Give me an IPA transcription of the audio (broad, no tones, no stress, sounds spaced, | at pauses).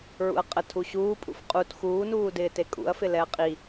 ɹ ṵ ɐ̯ qʼ ə tʰ u ɕ uː pʼ ṵ f qʼ u t x uː n uː d ɪː t e kʼ ṵ ɐ̯ f ɪ l ɛ ɐ̯ qʼ i